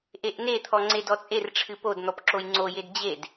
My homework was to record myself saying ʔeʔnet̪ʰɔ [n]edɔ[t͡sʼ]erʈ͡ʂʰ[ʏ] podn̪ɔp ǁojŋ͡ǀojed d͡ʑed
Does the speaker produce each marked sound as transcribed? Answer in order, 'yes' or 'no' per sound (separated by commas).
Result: no, yes, no